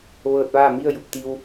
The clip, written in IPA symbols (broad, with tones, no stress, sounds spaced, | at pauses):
ʋ ɤː˧ t̚ ʋ aː˥˨ m i˥˨ ə̯ j u˧˩ p̚ t̪ i˧ w